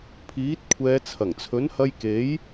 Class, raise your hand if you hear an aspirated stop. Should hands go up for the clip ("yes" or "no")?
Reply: yes